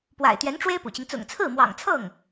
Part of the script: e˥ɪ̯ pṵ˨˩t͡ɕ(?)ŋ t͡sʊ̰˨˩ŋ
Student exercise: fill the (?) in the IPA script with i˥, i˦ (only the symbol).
i˦